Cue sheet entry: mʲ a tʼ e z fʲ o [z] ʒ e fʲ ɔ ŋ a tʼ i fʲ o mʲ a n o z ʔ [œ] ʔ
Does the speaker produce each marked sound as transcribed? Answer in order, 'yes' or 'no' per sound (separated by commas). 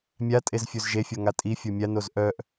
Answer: yes, yes